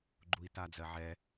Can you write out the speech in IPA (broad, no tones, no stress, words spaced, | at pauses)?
ɡ͡ǃui̯tad͡zɜʕɛ